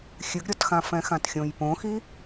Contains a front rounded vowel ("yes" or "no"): no